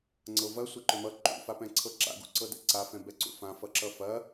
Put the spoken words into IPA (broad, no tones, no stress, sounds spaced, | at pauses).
ŋ͡ǀ ɤ v ɐ sʷ ɛ ǃ ʏ m ʌ ǃ ṵ f a p ɛ̃ ǀʰ ɤ ǁ a̰ ɡ ṵ ǀ ɤ d ɛ̰ ǀ a f ɛ̃ b ɛ ǀ ṵ f ã f ʌ ǁ ʌ f ɐ